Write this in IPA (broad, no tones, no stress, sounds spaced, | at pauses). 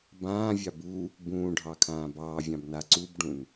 b ãː vʲ ɑ b u | b ũː ɖʱ ɑ kʰ ãː b ɑː vʲ ɑ̃ b n a ǀ u b ɖ ũ n